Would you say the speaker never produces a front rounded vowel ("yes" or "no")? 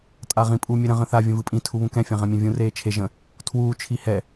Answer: yes